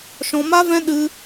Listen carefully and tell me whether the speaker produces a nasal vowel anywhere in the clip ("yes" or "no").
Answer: yes